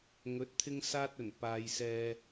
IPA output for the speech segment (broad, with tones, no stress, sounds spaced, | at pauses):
ŋ ɵ˨˥ t̚ t̪ʰ ɪ˥ ŋ s aː˥ t̚ ɵ˨˩ n p aː˨ j s ɛː˧